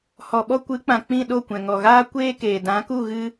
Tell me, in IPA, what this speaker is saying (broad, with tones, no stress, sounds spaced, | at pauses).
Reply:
h ɔ˨ ɓ ɔ˧ kʷ ɨ˨˦ k͡p ã˨ k͡p ĩ˦˨ ɗ o˦˨ kʷ ɛ̃˨ ŋ ɔ˨ ɣ aː˦ kʷ eː˦ k eː˨ d ã˨˦ k u˦˨ ɣ ɨ˦